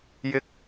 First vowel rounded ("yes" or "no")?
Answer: no